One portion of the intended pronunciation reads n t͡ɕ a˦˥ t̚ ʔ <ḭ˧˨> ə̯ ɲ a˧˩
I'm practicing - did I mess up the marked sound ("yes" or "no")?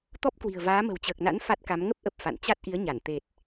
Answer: yes